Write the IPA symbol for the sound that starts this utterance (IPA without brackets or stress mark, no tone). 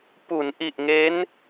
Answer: p